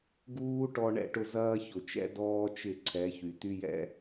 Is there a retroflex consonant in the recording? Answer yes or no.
yes